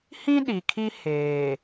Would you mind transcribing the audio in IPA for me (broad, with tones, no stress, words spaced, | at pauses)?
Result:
hĩ˦ ɗi˨kʰi˦heː˨